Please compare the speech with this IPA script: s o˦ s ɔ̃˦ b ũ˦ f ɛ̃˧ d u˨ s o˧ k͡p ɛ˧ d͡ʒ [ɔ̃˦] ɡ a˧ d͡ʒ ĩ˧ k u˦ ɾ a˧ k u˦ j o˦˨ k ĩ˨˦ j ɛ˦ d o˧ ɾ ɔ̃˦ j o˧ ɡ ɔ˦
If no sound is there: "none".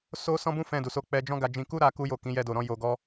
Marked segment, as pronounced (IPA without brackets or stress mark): ɔ̃˦